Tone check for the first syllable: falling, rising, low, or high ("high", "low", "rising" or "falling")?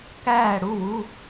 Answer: falling